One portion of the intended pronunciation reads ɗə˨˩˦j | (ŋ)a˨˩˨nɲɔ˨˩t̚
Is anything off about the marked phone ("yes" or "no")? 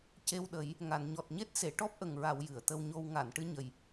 no